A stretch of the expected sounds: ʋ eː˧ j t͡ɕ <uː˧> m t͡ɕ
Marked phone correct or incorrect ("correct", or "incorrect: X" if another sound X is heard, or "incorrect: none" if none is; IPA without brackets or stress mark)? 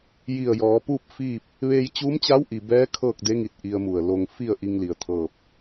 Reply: incorrect: uː˧˥